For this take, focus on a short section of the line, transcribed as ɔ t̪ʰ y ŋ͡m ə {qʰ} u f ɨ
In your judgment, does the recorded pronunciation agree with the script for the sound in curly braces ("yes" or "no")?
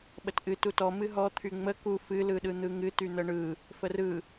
no